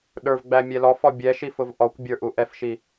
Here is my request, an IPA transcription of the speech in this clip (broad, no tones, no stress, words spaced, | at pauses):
ɗə˞vɡ͡bæ mʲɛlɔfɔ bʲɛʃi fʊvʔɔkʷbʲə˞ ʔuʔɛfʃi